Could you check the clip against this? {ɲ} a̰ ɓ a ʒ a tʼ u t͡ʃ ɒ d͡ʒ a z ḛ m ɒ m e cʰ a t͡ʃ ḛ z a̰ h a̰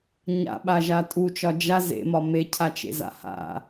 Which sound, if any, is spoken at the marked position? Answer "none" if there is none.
ɲ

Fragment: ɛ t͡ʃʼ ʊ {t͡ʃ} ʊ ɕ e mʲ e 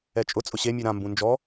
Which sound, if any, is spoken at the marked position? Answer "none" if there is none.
t͡sʼ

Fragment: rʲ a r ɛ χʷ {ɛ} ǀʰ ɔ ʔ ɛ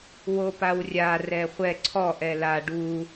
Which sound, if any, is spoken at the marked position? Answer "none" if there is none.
ɛ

